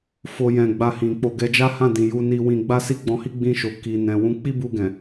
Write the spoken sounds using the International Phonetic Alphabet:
fo˦jɛ̃˦˨ ɡ͡ba˧hĩ˨k͡po˧ ɡɛ˧d͡ʒa˦hã˦˨dĩ˨ ju˨˦ni˧ wĩ˧ ɡ͡ba˦si˦ɡ͡bɔ̃˧hi˦ ɡ͡bĩ˧ʃo˨ ki˨nɛ̃˨ wũ˧k͡pi˦bu˧ɡɛ̃˨

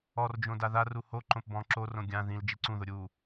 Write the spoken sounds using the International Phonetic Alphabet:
ɔrd͡ʒõ daðaru ho ǃõpbɔ̃ ǁorõ ɡʲã ðĩl d͡ʒiǀũðʊ ɾʲu

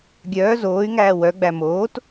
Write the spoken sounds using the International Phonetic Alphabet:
ɡʲœː zoːy̯ŋæː wœ ɡ͡bæmoːt

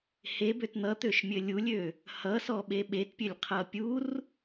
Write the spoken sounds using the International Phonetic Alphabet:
hebøt n̪ʌt̪øʃmʲɘ lʲulʲø | hʌsɔɓe ɓetpʲɘlʲqʰʌ pʲur

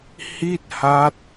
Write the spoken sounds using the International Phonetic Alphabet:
hi˥˩t̚ha˦˥t̚

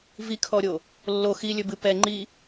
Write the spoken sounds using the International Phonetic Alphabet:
vikʰɔɾʲo | lːo xi lʲɵbɨ pɛ ŋ͡ǃi

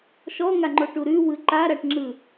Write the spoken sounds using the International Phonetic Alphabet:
ʃɔŋaŋ͡ǃoʈu ɾʉwɯ ǃaɾaʈŋ͡ǁɯ

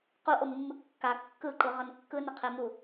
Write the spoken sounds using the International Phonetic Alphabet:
quʔomːɯ kːa kːɯǃɯʁʌn kːɯnʌqʰemu

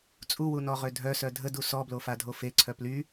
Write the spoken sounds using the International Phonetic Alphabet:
t͡sʼuwunɔʁø dʱœsœ dʱədu sɔblofadʱo feǀʰœ ply

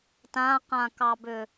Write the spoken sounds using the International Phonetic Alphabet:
tãqãkɑbʏ

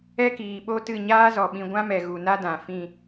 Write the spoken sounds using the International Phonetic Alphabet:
ɛ˦kiː˨ɓo˦tɨ˦˨ ɲaː˦zɔ˨ɓĩ˧ ɡʷã˦mɛ˨ɣu˨na˦ dã˨fĩ˦˨

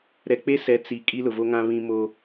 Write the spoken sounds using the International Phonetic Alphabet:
ɾɛ˨k͡pe˦sɛ˨˦ t͡si˨ kʼi˦lʊ˨vo˦ŋã˦ βĩ˦mo˦

